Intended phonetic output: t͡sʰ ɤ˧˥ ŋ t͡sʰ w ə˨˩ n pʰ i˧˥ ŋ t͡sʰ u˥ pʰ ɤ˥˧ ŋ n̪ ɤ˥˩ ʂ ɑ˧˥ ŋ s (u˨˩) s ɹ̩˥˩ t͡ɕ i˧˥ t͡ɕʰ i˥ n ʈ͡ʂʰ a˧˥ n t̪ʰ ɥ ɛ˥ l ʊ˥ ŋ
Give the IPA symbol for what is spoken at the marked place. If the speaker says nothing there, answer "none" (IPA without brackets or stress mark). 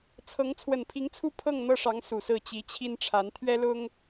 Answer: u˨˩